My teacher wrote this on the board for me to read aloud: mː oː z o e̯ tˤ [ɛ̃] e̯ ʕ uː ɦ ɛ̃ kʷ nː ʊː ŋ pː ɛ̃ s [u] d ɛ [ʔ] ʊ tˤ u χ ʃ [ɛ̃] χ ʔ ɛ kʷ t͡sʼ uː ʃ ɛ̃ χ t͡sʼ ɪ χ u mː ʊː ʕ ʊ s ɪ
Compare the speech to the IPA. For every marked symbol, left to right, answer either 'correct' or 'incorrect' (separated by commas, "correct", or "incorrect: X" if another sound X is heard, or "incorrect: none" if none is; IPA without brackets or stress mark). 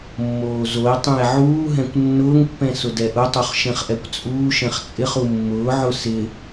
correct, incorrect: ʊ, correct, correct